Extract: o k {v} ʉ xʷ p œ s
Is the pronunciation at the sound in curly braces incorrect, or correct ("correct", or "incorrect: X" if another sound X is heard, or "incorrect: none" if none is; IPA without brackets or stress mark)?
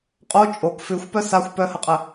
incorrect: f